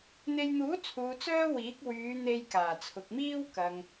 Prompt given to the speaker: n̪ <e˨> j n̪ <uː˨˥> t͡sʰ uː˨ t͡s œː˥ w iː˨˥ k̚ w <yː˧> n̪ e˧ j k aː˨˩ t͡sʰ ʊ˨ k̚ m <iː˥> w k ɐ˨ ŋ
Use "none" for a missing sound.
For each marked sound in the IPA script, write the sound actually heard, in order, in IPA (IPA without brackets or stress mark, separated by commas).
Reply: e˧, uː˨˥, yː˨˧, iː˥